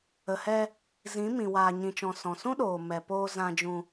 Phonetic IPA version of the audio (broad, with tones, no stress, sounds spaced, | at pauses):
ə˨ h ɛ˧ | z ĩ˨˦ m ĩ˨ w aː˨ ɲ ĩ˨ t͡ʃ ɔ̃˨ s ɔ̃˨ s ũ˦ ɗ oː˨ m ɛ˨ p oː˧ z ã˧ d͡ʒ ũ˧